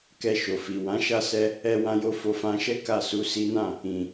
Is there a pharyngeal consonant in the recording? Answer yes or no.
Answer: no